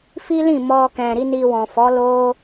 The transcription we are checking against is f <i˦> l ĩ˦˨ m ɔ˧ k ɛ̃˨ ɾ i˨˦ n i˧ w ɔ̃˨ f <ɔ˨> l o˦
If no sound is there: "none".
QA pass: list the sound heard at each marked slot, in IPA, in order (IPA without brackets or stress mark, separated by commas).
i˦, ɔ˨˦